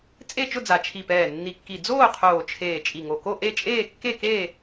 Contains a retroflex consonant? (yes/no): no